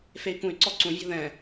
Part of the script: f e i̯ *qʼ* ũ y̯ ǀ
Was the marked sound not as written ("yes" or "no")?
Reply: yes